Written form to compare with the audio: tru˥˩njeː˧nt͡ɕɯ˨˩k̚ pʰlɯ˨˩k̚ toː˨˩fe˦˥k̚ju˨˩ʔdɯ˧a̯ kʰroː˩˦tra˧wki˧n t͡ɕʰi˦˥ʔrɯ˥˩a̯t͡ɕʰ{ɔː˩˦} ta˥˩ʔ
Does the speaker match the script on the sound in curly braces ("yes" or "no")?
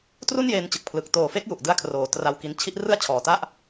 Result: no